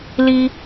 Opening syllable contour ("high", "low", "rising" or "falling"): high